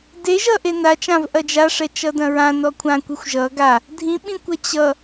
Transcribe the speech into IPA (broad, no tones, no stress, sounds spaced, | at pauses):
d e ʒ ʌ ʔ e n a t͡ʃ ã v ʔ ɐ d͡ʒ a ʂ ɛ t͡ʃ ʌ d ɐ̃ ɹ ã n ɔ kʷʰ ã kʷ i xʷ ʒ ʌ ɡ a | dʱ ĩ ɓ ĩ kʷ ʌ t͡ɕ ʌ